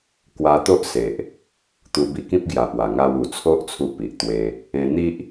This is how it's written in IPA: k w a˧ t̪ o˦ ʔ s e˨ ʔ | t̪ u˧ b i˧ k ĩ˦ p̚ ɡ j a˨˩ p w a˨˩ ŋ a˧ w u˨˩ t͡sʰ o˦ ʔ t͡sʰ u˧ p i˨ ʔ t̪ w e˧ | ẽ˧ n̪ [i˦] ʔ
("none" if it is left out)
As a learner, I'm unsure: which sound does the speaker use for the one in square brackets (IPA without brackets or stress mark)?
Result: i˦